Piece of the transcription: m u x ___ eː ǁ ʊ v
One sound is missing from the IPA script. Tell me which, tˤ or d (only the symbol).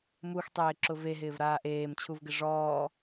tˤ